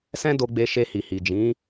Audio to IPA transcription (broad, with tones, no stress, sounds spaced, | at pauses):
s ɛ̃˦ d o˧ ɡ͡b e˧ ʃ e˧ h i˨ h i˨ d͡ʒ ĩ˨˦